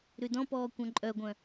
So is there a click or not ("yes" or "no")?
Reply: yes